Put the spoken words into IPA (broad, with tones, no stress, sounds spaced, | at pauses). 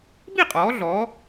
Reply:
b i˥˨ qʼ ɔː˩˧ ɮ ɔː˩˧